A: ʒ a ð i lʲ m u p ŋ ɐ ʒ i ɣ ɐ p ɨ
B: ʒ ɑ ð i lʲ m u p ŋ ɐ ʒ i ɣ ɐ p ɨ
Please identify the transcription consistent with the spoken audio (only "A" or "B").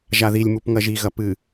A